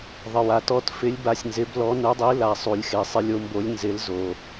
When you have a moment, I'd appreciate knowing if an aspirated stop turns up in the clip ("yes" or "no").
no